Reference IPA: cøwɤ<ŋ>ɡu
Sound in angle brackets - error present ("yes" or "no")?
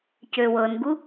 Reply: yes